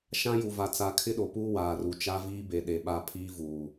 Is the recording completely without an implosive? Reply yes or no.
no